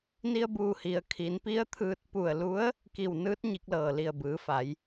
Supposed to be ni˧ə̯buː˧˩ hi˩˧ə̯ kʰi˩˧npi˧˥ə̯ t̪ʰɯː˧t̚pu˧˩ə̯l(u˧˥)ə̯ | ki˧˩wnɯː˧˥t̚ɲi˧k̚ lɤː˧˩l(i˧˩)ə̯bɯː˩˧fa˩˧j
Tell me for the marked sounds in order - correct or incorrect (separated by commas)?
correct, correct